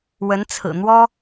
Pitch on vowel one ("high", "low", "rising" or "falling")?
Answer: rising